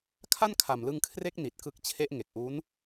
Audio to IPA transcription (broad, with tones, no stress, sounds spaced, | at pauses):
kʰ a˥˩ n kʰ a˨˩ m l ɯ˧ ŋ kʰ r e˦˥ k̚ n i˨˩ t̚ k ɯ˦˥ k̚ t͡ɕʰ e˦˥ ʔ ŋ e˨˩ k̚ ʔ uː˦˥ n